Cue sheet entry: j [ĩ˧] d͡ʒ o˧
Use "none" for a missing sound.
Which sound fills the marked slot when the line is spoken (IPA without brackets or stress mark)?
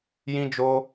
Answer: ĩ˧